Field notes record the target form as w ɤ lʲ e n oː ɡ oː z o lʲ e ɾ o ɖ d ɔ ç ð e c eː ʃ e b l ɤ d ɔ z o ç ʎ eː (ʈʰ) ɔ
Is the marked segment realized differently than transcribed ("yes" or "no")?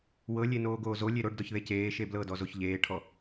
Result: no